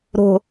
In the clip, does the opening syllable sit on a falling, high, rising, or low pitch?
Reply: low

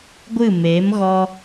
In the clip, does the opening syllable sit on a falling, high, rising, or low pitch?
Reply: falling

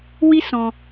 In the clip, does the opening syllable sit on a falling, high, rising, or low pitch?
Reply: high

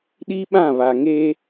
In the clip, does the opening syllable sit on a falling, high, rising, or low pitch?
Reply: high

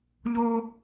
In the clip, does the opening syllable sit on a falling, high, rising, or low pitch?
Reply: high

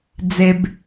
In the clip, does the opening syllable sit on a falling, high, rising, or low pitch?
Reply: low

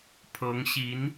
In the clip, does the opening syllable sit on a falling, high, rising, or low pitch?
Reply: rising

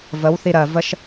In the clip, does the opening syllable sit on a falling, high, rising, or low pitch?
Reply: rising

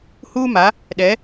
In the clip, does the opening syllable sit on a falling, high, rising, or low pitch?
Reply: high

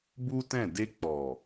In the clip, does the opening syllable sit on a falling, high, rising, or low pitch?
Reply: high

